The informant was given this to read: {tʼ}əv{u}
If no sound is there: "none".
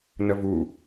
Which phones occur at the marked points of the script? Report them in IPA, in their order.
n, u

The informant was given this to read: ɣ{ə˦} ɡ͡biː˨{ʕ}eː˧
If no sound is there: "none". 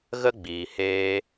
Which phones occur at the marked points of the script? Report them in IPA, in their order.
ə˦, h

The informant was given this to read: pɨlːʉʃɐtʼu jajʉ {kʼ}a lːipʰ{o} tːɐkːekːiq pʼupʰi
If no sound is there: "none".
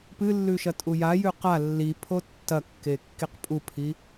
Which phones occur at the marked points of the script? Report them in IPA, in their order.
q, o

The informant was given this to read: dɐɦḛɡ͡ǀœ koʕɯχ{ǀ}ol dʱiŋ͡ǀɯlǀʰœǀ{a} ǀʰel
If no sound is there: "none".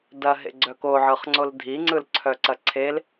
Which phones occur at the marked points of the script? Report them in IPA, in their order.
ŋ͡ǀ, ɐ

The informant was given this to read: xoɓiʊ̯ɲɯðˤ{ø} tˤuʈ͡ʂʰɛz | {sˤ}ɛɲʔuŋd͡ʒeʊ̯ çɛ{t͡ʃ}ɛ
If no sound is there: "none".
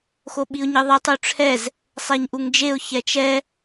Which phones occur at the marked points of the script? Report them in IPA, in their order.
e, sˤ, t͡ʃ

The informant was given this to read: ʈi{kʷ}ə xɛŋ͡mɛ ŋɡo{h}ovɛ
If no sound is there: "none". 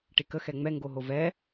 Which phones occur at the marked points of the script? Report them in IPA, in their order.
k, ɦ

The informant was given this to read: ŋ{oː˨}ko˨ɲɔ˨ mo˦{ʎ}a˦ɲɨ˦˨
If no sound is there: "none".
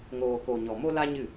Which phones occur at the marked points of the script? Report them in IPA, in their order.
oː˨, l

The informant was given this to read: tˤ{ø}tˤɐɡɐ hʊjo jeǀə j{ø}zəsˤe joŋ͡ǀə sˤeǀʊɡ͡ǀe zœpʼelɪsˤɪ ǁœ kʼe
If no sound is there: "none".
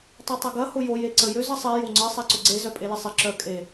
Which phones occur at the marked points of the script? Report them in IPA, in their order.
ø, ø

